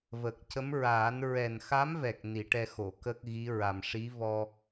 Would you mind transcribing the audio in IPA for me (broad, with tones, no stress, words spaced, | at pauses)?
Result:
və˨˩k̚ cə˧˥mɹaː˨˩˦n ɹɛ˨˩nxa˧˥mvɛ˨˩k̚ ni˨˩˦ʈɛ˧xo˨˩˨ kə˦˥k̚ɣi˧˥ ɹa˨˩mʂi˧˥ vɔ˧